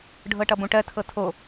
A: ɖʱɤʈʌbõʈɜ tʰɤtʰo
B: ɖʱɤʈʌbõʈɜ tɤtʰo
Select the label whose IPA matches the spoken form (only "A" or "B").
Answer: A